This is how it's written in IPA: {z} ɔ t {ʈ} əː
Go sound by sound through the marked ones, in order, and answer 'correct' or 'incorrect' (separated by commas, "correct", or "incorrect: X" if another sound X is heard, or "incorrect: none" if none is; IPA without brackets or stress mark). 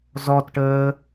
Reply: correct, correct